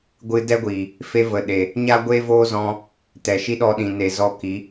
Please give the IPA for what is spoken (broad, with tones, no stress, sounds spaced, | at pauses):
ɡʷ ɨ˧ d ɛ˦ ɡʷ iː˨ | f e˧ v ə˨ ɗ e˨ | ɲ a˦ ɡʷ eː˦ v oː˦ z ɔ̃˧ | t ɛ˨ ʃ i˦ ɗ ɔ˧ ɗ ĩ˨ n e˨ z ɔ˧ k i˨˦